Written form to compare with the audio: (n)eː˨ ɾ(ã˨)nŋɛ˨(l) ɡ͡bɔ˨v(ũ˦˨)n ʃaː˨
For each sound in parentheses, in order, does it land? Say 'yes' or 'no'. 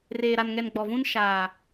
no, no, no, no

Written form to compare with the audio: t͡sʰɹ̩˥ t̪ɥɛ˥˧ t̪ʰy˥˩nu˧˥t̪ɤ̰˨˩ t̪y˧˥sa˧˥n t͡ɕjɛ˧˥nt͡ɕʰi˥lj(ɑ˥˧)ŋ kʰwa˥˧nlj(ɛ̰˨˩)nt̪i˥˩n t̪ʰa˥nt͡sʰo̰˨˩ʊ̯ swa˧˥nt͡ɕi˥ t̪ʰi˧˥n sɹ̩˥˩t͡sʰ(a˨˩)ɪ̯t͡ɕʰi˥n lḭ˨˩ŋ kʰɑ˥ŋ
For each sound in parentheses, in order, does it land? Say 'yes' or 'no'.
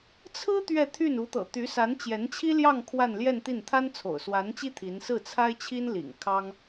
yes, no, no

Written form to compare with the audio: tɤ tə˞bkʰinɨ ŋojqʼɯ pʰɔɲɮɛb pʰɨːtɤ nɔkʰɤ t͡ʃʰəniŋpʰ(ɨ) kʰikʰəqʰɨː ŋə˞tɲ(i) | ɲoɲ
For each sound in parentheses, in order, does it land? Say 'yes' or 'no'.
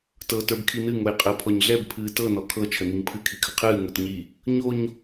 yes, yes

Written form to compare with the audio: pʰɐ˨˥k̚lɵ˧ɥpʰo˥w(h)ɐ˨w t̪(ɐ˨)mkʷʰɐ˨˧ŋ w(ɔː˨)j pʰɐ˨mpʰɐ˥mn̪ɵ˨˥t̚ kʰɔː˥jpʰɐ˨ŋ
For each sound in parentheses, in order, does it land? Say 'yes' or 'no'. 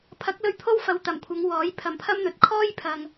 no, no, no

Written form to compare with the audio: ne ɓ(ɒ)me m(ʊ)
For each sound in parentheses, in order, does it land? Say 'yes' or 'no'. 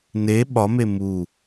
yes, no

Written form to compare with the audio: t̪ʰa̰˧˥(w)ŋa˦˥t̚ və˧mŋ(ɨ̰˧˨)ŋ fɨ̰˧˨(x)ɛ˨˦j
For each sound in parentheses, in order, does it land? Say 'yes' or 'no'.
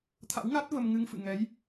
yes, no, no

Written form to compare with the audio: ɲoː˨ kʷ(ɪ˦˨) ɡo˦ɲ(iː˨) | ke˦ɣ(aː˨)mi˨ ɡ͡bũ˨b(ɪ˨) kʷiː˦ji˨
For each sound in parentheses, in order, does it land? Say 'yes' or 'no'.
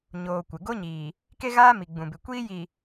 no, yes, no, yes

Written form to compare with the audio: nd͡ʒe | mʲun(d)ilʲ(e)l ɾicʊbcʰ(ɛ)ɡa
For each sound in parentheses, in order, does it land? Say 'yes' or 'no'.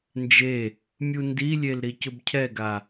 yes, yes, yes

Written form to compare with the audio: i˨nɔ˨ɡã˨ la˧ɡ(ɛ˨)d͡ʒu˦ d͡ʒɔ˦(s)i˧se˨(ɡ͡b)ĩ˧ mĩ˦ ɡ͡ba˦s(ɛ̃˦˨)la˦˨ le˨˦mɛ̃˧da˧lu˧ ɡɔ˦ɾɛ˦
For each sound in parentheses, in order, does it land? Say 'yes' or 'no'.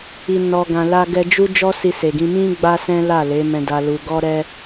no, yes, no, no

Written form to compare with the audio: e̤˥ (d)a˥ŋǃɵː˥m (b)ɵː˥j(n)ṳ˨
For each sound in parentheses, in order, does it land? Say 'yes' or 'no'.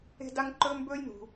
yes, yes, yes

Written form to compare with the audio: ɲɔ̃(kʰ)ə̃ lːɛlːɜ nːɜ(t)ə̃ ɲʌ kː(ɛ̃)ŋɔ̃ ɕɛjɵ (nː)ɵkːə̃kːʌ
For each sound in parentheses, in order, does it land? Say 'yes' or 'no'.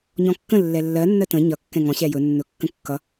no, yes, yes, yes

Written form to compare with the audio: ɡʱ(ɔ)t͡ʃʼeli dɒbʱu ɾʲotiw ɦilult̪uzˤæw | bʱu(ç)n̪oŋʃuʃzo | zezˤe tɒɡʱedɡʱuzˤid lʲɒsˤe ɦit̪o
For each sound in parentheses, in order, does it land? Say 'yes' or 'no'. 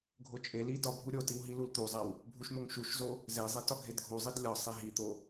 no, no

